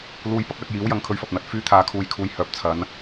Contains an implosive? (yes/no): no